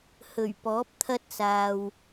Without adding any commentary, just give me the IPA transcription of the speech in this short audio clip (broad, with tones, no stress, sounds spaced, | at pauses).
h ɵ˨˩ ɥ p ɔː˨˥ p̚ t̪ʰ ɐ˥ t̚ s aː˨ w